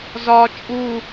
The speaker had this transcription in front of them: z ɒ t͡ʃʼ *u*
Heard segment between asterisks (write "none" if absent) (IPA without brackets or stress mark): u